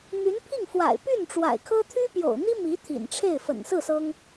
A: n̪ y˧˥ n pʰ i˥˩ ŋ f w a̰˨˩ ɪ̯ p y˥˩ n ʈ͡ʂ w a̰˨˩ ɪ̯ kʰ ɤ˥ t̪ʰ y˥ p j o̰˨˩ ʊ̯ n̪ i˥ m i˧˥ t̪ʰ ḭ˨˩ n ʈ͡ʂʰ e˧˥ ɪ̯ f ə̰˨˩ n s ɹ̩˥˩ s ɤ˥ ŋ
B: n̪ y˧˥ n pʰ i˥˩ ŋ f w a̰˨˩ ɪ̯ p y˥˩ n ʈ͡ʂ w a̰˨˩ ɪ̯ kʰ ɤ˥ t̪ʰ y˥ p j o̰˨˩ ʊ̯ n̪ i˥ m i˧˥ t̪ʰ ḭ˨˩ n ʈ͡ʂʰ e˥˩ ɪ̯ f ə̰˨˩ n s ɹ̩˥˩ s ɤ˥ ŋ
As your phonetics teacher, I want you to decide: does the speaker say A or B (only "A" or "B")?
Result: B